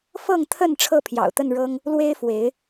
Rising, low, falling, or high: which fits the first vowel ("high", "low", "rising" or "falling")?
falling